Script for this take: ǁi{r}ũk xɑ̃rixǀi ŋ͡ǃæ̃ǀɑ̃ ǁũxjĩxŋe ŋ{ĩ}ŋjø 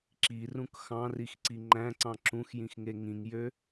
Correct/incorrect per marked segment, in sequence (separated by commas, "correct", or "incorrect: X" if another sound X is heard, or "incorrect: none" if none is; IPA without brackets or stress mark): correct, correct